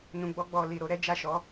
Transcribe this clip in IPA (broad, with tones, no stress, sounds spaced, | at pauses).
n ũ˨ ɡ͡b ɔ˧ ɡ͡b ɔ˨ l i˨ ɾ o˧ ɾ ɛ˦ d͡ʒ a˦˨ ʃ ɔ˨˦